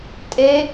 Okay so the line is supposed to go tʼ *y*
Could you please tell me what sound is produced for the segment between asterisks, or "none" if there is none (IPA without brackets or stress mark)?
e